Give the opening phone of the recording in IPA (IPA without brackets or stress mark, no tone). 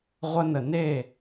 ʁʷ